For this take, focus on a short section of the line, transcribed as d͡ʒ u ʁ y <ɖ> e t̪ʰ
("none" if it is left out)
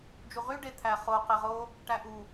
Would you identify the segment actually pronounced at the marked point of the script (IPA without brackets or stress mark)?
ɖ